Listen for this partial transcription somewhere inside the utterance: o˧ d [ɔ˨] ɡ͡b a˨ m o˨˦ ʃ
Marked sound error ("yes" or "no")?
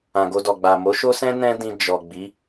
no